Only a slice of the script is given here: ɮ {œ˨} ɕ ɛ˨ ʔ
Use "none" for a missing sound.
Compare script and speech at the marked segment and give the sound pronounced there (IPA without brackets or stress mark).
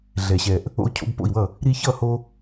ɛ˨